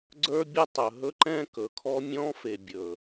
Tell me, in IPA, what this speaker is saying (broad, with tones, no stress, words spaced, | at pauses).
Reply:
ɡ͡ǀə˞˦bʲə˦ tˤɵ˨ɦɵ˦ǃɛ̃˦ kɵ˨kʰɔ˦ mʲɔ̃˦ fe˨bʲɵ˨